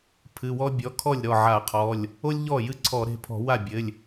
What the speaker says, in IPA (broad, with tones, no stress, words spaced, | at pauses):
pʰɨ˩˧˩wɔ˥ bʲɔ˩˧˩kʰɔ˥˩lʲ ɾɔ˥˩ʕa˧˩˧qʰɔ˩˧˩lʲ | o˥lʲʎɔ˥˩jɨ˥˩ǀʰɔ˧˩˧ ɾe̤˩˧˩pʰɔ̤˧˩˧wa˥˩bʲɘ˩˧˩lʲ